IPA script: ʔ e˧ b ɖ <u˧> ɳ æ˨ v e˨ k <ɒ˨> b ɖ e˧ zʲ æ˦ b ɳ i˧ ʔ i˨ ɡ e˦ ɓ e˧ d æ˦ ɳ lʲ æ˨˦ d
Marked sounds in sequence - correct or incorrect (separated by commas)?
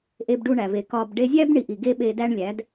correct, correct